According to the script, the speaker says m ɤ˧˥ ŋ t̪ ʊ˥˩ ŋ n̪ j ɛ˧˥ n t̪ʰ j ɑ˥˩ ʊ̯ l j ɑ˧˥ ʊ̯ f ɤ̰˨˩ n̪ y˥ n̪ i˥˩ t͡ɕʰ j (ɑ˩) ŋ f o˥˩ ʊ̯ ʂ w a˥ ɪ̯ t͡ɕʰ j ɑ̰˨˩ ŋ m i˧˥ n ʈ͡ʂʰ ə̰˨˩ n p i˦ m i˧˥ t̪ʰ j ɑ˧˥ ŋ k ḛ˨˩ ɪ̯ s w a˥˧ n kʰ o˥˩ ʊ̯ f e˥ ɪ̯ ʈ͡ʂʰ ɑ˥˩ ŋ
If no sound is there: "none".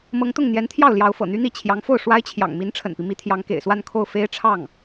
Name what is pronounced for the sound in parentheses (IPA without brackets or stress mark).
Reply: ɑ˧˥